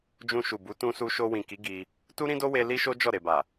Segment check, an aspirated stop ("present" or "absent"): absent